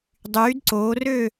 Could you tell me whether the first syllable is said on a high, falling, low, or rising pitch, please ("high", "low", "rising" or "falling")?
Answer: rising